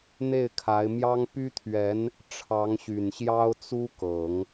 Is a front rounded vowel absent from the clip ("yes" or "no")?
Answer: no